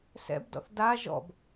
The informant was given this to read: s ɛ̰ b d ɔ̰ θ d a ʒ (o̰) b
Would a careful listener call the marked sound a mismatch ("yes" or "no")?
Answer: yes